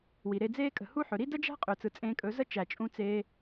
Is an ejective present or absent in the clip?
present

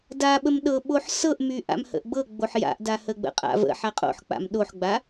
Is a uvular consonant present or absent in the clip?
present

